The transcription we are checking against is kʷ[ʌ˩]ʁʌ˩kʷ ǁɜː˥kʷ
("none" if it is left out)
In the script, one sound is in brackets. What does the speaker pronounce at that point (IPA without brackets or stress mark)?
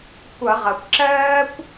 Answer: ʌ˧˩˧